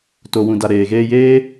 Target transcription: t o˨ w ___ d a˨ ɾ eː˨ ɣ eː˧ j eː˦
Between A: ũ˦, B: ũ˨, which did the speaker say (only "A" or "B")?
B